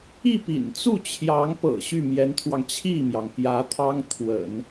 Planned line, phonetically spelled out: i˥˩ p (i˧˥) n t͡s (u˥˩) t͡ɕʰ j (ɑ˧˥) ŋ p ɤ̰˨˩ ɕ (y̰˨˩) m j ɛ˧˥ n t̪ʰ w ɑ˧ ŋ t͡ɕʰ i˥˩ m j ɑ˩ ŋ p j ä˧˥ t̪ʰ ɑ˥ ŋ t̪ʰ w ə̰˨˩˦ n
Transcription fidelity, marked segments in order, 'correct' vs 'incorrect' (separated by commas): incorrect, correct, correct, incorrect